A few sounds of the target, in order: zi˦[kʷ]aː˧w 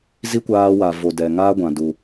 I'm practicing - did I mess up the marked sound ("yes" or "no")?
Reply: no